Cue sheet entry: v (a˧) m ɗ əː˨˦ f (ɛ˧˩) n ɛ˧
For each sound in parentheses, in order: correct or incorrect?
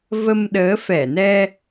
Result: incorrect, correct

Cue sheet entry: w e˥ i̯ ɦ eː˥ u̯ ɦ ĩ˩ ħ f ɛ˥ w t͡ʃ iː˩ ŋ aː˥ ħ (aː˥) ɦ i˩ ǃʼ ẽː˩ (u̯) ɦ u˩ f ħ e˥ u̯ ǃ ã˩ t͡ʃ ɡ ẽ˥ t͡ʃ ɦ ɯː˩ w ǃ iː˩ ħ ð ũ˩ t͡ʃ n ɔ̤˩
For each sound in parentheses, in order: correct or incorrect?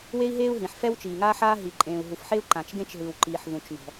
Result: correct, correct

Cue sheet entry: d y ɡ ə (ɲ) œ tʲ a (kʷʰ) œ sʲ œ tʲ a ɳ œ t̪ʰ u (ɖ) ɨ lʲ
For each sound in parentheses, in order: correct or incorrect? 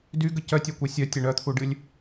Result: incorrect, incorrect, correct

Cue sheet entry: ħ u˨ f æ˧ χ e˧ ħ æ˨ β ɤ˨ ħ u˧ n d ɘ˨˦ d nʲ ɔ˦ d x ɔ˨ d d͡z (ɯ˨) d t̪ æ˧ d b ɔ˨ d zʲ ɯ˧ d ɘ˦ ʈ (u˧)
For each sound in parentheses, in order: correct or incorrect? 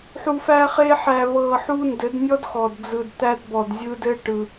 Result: correct, incorrect

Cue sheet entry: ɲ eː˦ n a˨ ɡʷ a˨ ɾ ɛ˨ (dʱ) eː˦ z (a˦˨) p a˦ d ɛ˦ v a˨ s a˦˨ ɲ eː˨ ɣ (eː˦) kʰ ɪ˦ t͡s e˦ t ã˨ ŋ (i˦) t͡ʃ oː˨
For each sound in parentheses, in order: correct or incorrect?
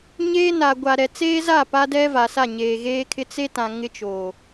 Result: incorrect, correct, correct, incorrect

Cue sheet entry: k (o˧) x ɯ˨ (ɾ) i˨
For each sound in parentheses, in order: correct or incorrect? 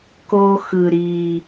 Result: correct, correct

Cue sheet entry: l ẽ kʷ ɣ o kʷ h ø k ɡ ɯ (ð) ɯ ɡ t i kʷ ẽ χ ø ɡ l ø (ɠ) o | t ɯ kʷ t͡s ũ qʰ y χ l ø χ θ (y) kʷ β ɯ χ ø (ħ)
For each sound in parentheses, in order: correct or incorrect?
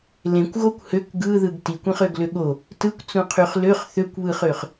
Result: correct, correct, incorrect, incorrect

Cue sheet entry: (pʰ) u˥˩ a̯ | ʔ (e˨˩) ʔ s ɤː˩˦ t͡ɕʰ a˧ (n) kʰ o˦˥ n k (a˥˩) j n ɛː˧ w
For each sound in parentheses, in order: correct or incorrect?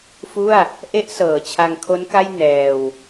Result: incorrect, incorrect, incorrect, correct

